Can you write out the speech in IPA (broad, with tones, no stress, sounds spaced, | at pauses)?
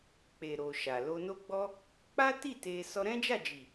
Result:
k͡p e˨ ɾ o˨ ʃ a˨ l o˧ n o˦ ɡ͡b ɔ˦ | k͡p a˦ t i˦˨ t e˧ s ɔ˧ ɾ ɛ̃˦ d͡ʒ a˦˨ d͡ʒ i˨